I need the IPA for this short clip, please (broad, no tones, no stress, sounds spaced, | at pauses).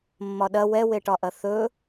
mː ɒ ɗ ɐ w ɛ w e ʈ ɒ ʔ ɐ θ ɵ